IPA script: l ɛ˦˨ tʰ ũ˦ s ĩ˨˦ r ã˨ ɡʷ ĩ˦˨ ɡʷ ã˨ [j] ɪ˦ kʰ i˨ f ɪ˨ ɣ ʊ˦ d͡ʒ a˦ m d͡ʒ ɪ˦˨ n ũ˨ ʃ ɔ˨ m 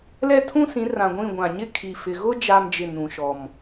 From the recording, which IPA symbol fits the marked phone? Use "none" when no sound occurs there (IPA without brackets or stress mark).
ɲ